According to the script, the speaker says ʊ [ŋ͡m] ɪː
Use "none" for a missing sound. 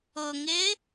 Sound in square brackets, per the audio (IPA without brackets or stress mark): ŋ